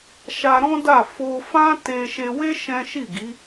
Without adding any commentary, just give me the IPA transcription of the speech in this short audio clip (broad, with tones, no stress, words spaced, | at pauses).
ʃa˧ɾɔ̃˦da˦˨ fo˧ fã˦te˧ ʃe˧we˦ ʃɛ̃˦ ʃi˦˨ɡi˨˦